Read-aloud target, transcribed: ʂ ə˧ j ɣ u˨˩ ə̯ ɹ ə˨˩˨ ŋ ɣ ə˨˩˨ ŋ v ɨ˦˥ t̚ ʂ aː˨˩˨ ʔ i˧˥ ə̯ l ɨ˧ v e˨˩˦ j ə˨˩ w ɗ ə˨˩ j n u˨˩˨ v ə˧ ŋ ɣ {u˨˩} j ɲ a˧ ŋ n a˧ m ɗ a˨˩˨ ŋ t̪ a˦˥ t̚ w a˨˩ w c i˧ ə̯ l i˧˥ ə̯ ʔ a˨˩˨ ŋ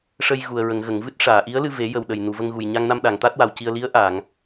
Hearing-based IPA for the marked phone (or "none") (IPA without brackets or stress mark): u˨˩